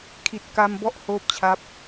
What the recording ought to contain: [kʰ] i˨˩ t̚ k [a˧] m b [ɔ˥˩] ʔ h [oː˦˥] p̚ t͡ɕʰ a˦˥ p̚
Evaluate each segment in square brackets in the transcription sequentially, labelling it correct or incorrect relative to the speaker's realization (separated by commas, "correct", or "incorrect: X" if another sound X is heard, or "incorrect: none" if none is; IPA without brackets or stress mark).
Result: correct, correct, correct, correct